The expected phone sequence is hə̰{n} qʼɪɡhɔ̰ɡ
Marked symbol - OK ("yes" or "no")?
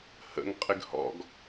no